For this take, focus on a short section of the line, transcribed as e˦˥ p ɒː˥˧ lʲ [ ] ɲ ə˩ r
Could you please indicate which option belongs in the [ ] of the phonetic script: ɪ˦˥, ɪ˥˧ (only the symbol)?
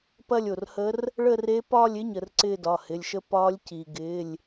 ɪ˦˥